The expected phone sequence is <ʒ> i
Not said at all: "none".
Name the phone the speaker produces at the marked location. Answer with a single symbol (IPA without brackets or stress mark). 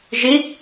ʒ